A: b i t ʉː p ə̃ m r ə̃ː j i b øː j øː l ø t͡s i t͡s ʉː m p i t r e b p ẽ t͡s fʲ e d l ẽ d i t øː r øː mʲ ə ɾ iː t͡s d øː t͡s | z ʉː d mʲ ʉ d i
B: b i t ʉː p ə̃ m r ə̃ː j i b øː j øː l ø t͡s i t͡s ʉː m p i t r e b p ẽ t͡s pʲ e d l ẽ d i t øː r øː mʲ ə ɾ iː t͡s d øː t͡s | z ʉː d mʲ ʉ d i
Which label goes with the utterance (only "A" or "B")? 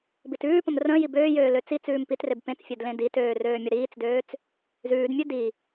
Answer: A